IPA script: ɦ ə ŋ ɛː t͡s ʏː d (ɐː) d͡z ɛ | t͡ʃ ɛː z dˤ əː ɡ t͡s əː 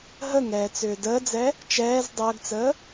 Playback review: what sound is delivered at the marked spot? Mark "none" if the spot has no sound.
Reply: əː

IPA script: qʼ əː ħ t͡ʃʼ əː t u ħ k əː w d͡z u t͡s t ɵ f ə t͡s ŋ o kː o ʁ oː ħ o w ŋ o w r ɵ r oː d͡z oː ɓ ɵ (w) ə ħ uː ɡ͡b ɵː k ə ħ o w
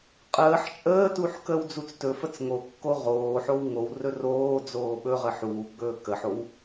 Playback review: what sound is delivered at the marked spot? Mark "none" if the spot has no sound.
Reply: ʁ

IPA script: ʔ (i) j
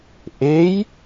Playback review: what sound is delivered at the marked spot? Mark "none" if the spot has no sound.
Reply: e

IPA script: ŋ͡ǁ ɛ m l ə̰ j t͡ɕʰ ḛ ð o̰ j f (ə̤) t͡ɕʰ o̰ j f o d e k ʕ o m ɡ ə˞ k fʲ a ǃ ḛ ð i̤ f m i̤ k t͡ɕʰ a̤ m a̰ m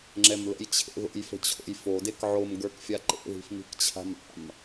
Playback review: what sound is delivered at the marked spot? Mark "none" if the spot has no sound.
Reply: ə̤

